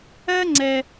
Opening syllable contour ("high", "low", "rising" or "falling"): high